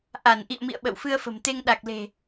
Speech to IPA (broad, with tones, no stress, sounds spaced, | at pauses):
ʔ a˧˩ n ʔ ḭ˧˨ ə̯ m ḭ˧˨ ə̯ ɓ ə̰˧˨ w f ɨ˧ ə̯ f ə̤˨˩ m t̪ e˧ ŋ ɗ a˨˩ k̚ l e̤˨˩